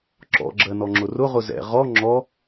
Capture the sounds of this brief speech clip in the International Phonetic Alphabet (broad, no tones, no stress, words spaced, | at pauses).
ǁɔ̰ɡ͡ǁɜ nɔŋ͡ǁʊrʊʁʊ zɛ̰ ʁɔ ŋ͡ǁɔ